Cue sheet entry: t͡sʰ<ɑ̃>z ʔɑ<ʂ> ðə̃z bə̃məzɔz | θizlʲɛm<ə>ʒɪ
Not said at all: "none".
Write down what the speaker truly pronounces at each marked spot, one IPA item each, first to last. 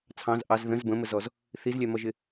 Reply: ɑ̃, z, ʌ

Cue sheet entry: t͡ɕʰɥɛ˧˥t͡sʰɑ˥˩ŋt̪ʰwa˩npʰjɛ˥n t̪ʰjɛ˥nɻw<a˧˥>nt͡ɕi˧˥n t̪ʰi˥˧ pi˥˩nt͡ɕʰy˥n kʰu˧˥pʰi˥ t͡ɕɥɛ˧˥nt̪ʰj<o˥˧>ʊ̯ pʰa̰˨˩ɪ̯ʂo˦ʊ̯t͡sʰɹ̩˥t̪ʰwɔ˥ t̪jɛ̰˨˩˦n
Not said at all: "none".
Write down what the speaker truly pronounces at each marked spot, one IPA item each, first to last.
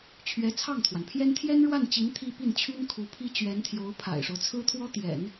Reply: a˥˩, o˧˥

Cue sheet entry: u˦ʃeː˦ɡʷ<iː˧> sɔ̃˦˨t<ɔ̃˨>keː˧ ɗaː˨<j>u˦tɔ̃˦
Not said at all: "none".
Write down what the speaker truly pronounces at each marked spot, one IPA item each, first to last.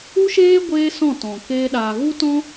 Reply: eː˧, ɔ̃˨, ɣ

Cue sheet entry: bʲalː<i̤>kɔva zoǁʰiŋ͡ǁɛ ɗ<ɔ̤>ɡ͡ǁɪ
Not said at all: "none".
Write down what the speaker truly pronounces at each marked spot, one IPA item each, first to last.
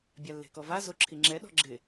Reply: e̤, ɔ̤

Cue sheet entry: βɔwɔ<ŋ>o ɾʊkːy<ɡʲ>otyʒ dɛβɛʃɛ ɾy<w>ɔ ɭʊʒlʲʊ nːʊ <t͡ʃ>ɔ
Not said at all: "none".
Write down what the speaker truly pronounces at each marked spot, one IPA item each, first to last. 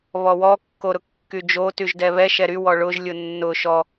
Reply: kː, d͡ʒ, w, ʃ

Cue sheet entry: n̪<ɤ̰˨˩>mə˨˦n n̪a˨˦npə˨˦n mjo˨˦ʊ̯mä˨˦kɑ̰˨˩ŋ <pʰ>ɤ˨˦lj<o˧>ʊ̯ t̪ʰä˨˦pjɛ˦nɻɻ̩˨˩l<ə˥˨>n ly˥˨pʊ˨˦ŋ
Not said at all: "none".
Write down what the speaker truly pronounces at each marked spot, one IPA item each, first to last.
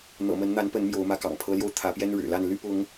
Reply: ɤ̰˨˩, pʰ, o˧, a˥˨

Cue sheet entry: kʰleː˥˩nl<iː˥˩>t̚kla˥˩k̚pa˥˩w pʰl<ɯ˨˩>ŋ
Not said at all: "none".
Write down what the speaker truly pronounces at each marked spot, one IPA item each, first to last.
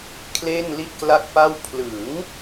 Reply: i˥˩, ɯ˩˦

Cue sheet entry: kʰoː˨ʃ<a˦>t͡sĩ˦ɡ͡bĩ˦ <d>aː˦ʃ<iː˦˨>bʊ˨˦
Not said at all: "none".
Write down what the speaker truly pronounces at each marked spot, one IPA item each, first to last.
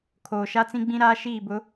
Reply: a˦, ɾ, iː˦˨

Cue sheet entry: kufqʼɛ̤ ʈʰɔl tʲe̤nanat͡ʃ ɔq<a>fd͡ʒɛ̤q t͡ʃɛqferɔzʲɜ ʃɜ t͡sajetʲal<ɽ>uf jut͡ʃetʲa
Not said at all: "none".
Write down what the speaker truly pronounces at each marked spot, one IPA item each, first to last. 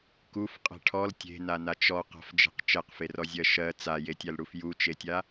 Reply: a̤, ɽ

